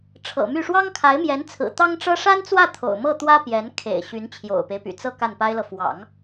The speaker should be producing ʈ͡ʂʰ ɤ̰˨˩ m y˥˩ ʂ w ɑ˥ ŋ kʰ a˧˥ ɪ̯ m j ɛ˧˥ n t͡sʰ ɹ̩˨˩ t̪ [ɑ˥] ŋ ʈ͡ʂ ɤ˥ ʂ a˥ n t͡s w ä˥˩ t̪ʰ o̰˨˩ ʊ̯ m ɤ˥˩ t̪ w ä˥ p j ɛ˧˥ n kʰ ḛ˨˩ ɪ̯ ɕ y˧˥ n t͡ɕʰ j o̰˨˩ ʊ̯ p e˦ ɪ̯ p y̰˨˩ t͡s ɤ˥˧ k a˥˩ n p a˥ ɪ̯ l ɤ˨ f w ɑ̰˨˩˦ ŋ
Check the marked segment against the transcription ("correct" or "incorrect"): correct